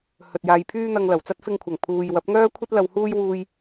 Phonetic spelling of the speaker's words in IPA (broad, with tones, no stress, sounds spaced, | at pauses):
h ɵ˨ t̚ j aː˧ j pʰ yː˥ n̪ ɐ˧ ŋ l ɐ˨˩ w t͡s ɐ˥ t̚ f ɪ˧ ŋ kʷʰ ɐ˨˩ ŋ pʰ uː˨ j w ɐ˨˥ p̚ ŋ œː˥ kʷʰ ɐ˥ t̚ l ɐ˧ w h uː˥ j w uː˧ j